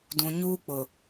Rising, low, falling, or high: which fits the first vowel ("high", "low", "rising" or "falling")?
low